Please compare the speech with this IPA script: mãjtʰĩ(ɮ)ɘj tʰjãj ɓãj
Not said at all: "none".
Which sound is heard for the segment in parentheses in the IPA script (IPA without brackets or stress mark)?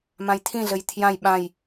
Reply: ɮ